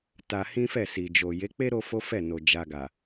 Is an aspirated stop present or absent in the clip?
absent